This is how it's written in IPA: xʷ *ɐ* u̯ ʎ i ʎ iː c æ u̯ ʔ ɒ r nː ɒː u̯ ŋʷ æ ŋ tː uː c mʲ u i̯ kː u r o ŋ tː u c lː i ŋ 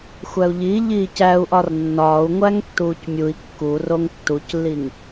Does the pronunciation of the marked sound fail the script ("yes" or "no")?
yes